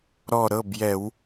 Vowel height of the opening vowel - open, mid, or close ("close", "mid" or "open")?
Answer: mid